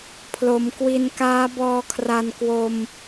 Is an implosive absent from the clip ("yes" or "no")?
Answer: yes